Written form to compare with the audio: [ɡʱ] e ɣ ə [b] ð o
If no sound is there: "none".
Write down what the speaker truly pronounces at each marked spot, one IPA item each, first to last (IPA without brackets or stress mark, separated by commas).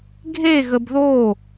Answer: ɡʱ, b